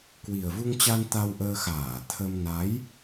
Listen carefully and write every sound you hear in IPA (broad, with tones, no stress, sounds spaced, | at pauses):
k w i˨˩ ə̯ v u˧ ŋ t͡ɕ a˧ n t̪ a˧ w ʔ əː˧ x aː˧˩ t̪ʰ ə˧ m n a˨˦ j